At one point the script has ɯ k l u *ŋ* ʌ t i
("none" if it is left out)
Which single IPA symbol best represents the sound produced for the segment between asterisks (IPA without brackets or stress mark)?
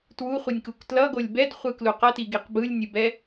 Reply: q